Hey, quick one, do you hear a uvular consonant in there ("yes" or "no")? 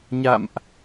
no